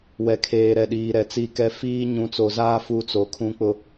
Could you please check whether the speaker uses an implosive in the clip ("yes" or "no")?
yes